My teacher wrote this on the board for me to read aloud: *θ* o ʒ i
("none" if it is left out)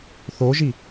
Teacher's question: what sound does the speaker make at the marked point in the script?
θ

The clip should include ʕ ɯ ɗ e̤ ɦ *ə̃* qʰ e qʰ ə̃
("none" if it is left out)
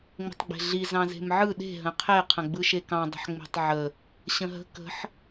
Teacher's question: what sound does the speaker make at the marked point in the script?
ə̃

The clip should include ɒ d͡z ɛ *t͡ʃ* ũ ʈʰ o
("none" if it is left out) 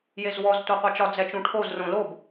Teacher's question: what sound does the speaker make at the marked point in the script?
t͡ʃ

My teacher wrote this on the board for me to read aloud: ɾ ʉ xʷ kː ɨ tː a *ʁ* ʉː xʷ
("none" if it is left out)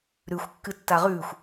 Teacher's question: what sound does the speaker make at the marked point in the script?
ʁ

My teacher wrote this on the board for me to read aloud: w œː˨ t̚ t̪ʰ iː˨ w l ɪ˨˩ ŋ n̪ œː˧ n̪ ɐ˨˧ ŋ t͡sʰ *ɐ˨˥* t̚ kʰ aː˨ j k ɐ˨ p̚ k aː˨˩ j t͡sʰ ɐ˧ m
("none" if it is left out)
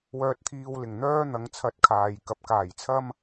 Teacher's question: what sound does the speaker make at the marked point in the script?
ɐ˨˥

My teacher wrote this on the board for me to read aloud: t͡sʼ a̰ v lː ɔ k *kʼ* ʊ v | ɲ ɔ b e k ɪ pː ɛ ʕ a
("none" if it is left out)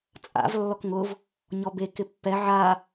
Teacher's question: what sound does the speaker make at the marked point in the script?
ŋ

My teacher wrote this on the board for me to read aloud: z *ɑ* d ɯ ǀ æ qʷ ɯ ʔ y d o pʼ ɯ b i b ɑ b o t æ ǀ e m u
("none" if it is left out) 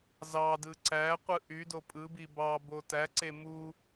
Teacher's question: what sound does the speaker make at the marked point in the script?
ɑ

